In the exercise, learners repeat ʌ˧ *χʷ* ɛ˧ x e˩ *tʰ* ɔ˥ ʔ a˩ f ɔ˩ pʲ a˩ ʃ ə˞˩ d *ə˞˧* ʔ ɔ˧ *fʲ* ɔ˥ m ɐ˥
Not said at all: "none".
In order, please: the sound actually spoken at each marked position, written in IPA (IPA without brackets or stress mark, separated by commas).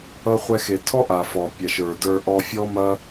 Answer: χʷ, tʰ, ə˞˧, fʲ